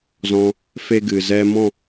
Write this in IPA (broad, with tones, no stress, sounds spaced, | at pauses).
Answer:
z ɔ̃˧ | f e˦ ɡ ɨ˨ z ɛ˧ m ɔ̃˦˨